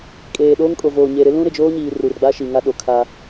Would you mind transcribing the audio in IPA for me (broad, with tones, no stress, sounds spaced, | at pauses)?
kʼ eː˨ ɗ oː˦ ŋ kʼ o˨ v oː˨ ɲ e˨ ɾ ɪ˦ l ũ˦ ɾ ɪ˨ d͡ʒ oː˦ ɲ iː˨ r u˨ r ɡ͡b a˦ ʃ i˨ ŋ a˦ ɗ o˨ kʰ a˦